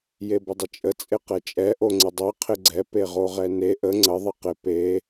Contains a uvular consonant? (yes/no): yes